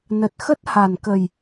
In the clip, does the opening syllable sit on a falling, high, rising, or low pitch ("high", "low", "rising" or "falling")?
low